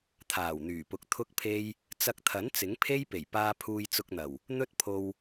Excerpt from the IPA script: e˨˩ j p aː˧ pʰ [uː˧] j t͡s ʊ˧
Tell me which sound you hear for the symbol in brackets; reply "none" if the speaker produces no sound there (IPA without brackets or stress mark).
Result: uː˧